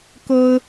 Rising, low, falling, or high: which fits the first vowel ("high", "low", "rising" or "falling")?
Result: high